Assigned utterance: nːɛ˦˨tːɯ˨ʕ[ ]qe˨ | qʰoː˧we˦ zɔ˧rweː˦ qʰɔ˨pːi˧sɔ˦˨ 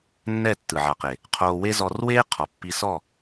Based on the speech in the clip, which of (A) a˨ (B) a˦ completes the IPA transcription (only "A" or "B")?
A